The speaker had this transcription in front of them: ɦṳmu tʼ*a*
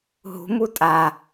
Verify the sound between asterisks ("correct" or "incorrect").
correct